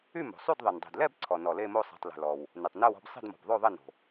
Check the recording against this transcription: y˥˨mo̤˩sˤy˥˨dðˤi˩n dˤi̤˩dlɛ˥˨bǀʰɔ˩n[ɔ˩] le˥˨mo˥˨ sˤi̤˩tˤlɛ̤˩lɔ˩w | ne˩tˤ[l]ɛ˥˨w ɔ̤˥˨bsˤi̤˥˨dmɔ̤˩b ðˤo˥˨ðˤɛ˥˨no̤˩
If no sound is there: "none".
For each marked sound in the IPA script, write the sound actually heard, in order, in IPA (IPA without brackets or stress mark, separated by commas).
ɔ˩, n